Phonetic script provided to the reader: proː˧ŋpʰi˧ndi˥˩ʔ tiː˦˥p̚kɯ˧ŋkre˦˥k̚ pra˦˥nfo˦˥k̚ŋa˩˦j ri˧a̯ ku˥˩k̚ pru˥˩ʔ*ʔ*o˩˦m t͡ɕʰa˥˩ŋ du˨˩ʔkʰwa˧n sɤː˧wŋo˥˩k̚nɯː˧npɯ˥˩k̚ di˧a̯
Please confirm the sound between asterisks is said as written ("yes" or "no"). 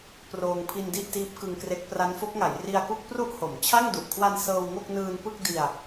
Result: no